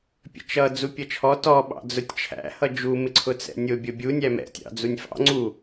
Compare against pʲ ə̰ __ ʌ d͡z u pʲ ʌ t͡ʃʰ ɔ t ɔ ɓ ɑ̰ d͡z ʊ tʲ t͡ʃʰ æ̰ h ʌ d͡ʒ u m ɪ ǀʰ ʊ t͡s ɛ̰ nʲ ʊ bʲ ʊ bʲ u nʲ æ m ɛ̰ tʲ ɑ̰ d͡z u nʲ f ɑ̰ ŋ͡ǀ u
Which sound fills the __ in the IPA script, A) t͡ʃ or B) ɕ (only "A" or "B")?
A